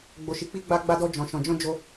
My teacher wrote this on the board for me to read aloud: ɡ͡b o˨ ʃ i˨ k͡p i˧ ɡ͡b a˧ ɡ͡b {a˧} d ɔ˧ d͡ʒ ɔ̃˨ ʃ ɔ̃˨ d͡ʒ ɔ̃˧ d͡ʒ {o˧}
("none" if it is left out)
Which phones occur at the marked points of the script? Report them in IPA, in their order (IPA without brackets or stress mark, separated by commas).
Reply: a˧, o˧